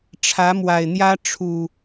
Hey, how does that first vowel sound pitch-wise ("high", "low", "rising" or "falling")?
rising